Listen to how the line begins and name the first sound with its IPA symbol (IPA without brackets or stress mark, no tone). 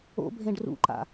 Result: o̰